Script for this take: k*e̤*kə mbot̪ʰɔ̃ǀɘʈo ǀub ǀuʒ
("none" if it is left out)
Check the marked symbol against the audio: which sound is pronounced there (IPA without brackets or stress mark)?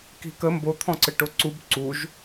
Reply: i̤